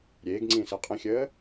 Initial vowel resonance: oral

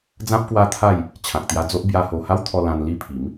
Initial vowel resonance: nasal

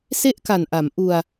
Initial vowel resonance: oral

